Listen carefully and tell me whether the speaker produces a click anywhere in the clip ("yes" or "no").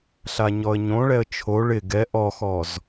no